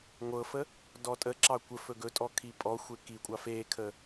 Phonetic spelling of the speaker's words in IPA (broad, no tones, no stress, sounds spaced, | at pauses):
ŋʷ ɤ f ə | d ɔ tʼ ə ǁ ɑ kʷ ə f ɵ ɡ ɵ tʼ ɔ kʰ i pʼ ɔ xʷ e k i kʷʼ ɑ f e kʰ ə